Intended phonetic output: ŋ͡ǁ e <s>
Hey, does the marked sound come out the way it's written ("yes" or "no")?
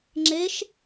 no